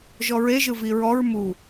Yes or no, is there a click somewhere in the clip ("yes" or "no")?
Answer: no